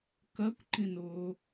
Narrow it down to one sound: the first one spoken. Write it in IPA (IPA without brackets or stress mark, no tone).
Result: k